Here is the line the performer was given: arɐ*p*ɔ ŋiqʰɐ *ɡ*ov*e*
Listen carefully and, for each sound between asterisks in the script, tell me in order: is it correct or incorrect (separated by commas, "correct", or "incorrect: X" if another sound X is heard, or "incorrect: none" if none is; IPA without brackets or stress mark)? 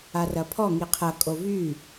incorrect: pʰ, incorrect: kʼ, incorrect: y